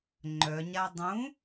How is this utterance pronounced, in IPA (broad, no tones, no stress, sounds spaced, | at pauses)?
ŋ͡ǃ œ ɲ a dˤ ũ